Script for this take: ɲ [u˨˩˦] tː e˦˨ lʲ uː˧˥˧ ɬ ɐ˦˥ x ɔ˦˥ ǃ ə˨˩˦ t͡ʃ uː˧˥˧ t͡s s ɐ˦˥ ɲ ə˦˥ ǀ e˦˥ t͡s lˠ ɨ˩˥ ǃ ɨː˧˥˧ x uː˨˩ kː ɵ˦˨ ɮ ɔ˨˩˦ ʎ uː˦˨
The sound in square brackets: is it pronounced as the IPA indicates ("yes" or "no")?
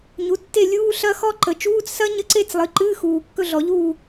no